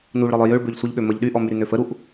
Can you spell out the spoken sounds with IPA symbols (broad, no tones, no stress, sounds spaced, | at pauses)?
n u ɭ ɾ ɔ lˠ œ j ø ɭ b ø ʎ sʷ ə ʎ ɠ ø m ə ʎ ɗ y ʔ ɔ m y ɾ y n ø f ə ɾ u ʔ